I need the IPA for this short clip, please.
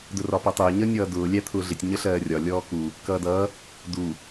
d ʊ r ɒ p ʌ tˤ ʊː ɲ ʌ nʲ ʌː d ʊː lʲ æ t̪ʰ ʊː ɮ ɪ tʲ ɲ ə ɬ ɜː rʲ ɒ lʲ ɔː k u | k ʌː d ʌː | d u

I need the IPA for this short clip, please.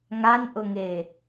ŋ a n ʔ ʊ ŋ e

